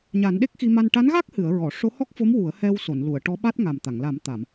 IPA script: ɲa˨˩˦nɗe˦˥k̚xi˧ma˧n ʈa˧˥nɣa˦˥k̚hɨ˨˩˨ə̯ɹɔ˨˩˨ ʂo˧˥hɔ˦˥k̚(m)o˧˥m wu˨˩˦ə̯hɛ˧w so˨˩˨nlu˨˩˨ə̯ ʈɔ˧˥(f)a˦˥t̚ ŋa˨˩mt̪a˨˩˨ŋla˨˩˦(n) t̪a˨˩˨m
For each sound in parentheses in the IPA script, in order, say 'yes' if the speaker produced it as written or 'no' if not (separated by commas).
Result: no, no, no